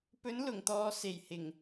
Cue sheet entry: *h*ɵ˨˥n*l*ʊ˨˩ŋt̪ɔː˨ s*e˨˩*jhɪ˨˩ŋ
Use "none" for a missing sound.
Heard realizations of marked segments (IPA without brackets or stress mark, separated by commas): p, l, e˨˩